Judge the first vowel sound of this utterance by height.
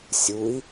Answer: high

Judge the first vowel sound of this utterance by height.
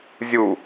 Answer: high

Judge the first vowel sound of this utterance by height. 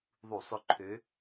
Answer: high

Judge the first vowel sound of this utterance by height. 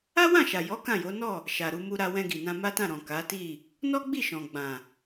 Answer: low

